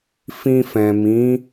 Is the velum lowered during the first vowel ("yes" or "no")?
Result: yes